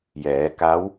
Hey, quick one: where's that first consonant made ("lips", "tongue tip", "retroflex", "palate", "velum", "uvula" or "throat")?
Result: palate